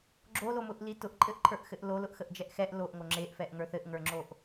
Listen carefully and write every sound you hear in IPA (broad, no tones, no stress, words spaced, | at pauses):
ɡ͡ǁolomʊʔli tʊʔǃʼɘʔǃʰə˞ʔxɘʔ lolʊʔxəʔd͡ʒɛʔ xɛʔ loʔŋo ŋ͡ǁeʔfɛʔŋə˞ θɘʔŋə˞ŋ͡ǁoʔ